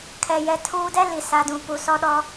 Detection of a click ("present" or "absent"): absent